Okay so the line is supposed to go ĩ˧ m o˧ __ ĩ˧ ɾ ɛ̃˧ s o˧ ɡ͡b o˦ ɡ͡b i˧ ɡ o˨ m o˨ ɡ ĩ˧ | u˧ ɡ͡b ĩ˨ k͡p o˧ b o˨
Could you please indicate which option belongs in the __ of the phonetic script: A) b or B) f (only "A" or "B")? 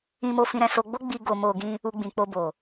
B